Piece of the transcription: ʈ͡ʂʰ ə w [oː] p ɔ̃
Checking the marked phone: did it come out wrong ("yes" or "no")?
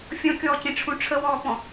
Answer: yes